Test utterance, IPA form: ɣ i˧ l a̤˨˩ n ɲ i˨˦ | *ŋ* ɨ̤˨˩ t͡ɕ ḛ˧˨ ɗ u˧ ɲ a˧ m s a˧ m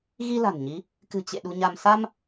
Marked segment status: incorrect: k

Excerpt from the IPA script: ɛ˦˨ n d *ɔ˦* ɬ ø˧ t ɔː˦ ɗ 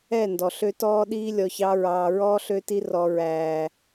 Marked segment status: incorrect: ɔ˨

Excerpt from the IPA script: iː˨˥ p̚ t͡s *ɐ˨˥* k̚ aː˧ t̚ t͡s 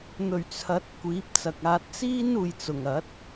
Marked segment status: incorrect: ɐ˨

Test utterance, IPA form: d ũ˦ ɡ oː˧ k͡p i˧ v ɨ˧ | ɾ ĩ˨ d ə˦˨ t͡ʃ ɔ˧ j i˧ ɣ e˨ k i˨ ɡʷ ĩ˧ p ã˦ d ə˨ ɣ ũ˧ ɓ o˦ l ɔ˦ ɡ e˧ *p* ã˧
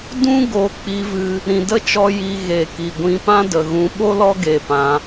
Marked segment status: correct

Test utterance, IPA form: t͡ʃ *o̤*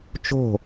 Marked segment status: correct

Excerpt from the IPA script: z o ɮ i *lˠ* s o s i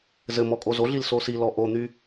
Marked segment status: incorrect: l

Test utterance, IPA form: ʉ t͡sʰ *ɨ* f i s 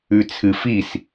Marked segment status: correct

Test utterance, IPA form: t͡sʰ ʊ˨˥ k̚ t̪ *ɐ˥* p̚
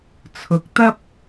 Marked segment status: correct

